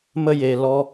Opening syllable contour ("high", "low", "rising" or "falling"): high